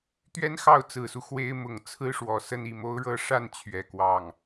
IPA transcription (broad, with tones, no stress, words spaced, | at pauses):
t̪ɥɛ˥nxɑ˥˩ʊ̯t͡sɹ̩˨˩su˦ xwe˥ɪ̯ mʊ˨˩ŋt͡sʰɹ̩˥ʂwɔ˨˩ sə˥˧ni˥˩mo˥ʊ̯ɻɤ˥ ʂa˥˩n t͡ɕʰɥɛ˨˩ kwɑ˥˩ŋ